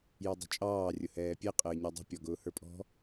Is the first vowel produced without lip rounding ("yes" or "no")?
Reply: no